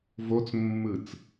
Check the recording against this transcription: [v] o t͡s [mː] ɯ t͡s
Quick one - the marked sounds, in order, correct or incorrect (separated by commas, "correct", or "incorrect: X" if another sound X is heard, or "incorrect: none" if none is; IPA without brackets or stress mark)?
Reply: correct, correct